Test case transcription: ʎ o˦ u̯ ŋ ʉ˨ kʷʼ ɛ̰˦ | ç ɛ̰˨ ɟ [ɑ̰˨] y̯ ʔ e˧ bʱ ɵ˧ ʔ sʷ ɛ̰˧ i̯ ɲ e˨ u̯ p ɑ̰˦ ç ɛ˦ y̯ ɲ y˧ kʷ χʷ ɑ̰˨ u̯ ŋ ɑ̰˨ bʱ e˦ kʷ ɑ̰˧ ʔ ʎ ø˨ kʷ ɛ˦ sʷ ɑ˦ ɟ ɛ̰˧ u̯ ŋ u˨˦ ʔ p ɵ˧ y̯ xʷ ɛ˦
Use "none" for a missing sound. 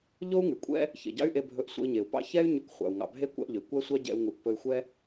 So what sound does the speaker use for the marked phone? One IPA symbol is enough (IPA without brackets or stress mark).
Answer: ɑ̰˦